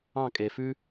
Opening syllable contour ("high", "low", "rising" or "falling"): falling